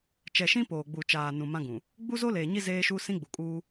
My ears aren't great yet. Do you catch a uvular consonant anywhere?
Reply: no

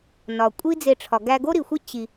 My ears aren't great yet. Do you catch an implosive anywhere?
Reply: no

